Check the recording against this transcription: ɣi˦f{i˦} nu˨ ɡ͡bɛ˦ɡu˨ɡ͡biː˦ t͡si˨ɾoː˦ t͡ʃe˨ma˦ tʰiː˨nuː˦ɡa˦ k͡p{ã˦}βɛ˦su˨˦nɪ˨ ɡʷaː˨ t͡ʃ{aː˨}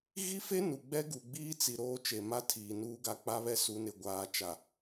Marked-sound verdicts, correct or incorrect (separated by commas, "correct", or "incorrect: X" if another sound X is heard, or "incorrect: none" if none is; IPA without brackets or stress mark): incorrect: e˦, incorrect: a˦, incorrect: a˨